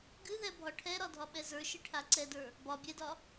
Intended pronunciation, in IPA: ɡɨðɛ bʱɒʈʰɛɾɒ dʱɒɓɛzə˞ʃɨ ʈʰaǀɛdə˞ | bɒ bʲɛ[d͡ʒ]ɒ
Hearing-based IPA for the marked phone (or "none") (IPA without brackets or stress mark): d